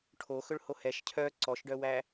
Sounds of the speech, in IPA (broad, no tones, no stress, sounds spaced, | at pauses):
ʈʰ o x ɵ ɭ h o h ɛ ʃ cʰ œ ǀ ɔ ʃ ɖ œ w æ